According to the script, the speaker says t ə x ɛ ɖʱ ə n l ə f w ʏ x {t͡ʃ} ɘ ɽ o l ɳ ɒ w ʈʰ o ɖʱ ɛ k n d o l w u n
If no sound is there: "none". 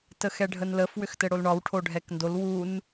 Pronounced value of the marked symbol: t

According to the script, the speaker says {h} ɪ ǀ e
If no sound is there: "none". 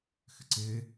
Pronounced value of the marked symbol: x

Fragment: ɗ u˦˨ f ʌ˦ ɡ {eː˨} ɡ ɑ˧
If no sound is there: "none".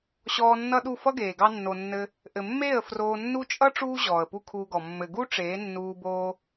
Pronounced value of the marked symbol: eː˨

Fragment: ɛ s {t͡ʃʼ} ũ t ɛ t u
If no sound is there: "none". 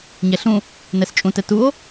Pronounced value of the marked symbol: t͡ʃʼ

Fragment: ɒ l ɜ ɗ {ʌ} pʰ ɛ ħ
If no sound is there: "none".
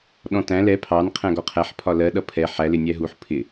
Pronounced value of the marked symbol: ʌ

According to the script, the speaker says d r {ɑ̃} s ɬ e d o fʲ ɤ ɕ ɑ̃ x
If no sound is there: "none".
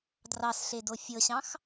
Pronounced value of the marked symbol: ɑ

